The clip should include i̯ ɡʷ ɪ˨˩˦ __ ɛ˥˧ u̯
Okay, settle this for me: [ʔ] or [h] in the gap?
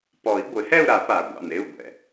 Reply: h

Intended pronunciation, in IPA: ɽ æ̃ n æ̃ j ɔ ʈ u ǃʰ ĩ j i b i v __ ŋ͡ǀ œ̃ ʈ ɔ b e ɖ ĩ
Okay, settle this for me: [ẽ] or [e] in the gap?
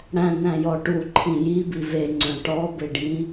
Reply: e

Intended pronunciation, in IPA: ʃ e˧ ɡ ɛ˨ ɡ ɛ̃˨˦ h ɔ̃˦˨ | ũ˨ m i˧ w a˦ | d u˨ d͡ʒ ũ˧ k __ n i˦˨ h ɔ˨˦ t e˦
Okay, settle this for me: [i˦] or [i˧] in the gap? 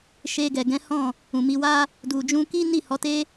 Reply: i˦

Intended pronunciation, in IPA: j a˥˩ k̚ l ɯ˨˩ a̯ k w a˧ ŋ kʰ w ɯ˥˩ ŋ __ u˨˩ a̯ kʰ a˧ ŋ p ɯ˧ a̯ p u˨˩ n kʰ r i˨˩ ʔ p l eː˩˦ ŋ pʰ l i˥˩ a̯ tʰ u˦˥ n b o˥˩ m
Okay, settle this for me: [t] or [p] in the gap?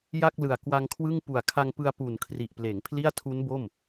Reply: p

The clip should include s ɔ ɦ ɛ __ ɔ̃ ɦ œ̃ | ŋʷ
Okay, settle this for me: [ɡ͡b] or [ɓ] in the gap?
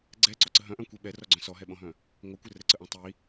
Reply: ɓ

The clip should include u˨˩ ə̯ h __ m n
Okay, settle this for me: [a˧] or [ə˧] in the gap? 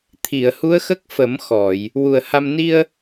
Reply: a˧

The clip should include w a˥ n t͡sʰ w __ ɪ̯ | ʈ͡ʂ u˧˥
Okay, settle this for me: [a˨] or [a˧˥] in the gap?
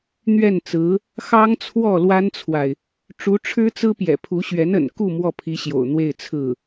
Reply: a˨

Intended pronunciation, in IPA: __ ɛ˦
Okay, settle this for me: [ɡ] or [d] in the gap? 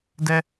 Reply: d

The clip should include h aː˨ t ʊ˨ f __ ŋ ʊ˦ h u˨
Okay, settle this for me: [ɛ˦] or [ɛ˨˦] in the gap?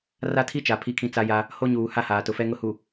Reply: ɛ˦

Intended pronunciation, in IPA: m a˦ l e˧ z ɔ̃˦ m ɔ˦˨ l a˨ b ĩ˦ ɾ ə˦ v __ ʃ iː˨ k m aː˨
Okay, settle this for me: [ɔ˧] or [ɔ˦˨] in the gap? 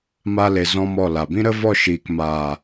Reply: ɔ˦˨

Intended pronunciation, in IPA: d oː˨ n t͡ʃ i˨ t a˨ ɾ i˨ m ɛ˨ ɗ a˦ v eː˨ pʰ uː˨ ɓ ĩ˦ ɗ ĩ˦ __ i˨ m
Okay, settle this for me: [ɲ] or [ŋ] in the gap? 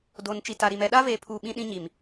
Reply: ɲ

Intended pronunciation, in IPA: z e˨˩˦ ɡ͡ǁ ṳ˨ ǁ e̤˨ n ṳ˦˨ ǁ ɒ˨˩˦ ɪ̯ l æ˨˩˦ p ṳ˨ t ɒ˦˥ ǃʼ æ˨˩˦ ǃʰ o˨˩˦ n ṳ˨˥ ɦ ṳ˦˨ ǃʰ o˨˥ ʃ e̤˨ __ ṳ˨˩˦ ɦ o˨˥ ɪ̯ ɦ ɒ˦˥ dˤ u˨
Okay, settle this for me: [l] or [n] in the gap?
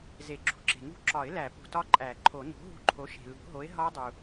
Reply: l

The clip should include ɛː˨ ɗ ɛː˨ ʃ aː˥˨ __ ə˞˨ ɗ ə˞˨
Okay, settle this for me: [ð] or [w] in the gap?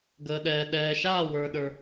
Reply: w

